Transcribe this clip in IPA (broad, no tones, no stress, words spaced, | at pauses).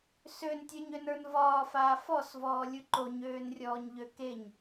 søntʲə˞ɲønə˞n vɒːfaː fɔsvɔːlʲu ǃoɲøːnrʲɔːɲʎø keɲ